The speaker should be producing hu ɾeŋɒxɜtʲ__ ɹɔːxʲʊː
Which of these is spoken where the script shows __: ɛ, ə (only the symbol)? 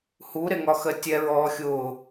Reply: ɛ